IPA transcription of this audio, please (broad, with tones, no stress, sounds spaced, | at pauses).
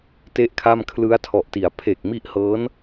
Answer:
t e˥˩ ʔ kʰ a˥˩ m kʰ l ɯ˦˥ a̯ tʰ ɔ˨˩ ʔ t i˩˦ a̯ pʰ e˨˩ k̚ m i˦˥ ʔ h ɤː˦˥ n